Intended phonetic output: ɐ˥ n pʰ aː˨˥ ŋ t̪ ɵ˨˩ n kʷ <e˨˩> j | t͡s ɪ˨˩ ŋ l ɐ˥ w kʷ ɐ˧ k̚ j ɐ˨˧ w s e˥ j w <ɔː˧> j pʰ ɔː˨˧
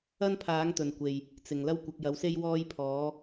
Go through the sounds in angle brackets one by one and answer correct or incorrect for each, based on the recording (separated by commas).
correct, correct